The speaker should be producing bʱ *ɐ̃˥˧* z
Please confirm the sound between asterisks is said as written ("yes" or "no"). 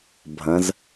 no